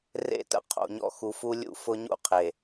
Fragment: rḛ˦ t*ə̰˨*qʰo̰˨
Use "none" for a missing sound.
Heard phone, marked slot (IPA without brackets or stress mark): ə̰˨